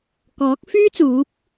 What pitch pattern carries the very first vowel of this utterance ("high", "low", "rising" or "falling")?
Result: rising